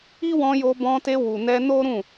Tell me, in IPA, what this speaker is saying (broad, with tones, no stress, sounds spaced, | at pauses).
i˦ w ɔ̃˧ j o˧ b ɔ̃˧ t e˧ w u˨ n ɛ˧ n o˦ ɾ ũ˦˨